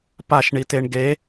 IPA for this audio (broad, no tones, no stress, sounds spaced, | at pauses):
p a ʃ ɳ i t e ɳ ɡ e